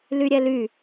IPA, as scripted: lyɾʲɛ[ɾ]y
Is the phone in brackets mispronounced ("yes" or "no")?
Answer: yes